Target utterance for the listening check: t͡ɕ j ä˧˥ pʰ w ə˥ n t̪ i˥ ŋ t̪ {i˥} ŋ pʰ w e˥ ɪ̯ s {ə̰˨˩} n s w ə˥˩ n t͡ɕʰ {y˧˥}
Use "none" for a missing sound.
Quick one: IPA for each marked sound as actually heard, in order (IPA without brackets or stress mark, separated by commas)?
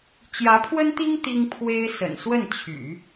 i˥, ə̰˨˩, y̰˨˩˦